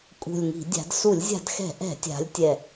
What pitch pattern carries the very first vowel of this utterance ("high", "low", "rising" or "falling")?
low